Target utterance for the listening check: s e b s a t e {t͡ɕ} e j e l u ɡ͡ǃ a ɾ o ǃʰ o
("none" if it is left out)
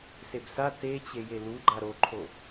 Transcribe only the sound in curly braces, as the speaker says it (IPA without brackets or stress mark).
t͡ɕ